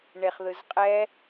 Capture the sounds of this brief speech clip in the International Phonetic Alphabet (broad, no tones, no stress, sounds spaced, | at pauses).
ɳ e χ ð ɯ z qʼ ɛ